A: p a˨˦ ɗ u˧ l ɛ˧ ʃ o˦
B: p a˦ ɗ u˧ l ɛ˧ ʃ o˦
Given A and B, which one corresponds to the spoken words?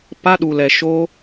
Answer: B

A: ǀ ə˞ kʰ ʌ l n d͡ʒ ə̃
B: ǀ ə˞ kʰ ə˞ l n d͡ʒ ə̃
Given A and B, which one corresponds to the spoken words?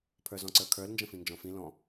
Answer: B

